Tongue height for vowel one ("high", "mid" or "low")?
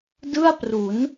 high